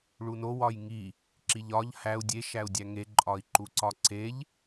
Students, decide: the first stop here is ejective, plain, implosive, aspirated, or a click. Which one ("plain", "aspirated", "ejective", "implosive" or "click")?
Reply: click